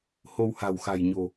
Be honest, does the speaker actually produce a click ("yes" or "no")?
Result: no